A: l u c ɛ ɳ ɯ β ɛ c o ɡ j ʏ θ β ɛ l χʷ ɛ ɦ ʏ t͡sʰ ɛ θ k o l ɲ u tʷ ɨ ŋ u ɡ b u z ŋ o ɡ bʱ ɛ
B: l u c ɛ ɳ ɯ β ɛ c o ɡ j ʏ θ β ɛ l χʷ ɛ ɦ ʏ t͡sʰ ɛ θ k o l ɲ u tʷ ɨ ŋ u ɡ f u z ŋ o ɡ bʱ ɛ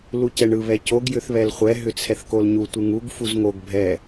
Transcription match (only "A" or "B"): B